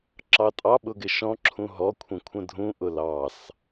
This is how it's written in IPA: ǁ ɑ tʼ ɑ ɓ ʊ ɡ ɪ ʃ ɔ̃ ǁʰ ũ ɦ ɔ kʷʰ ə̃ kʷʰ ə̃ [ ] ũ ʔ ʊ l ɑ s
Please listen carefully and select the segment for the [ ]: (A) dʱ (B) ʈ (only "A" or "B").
A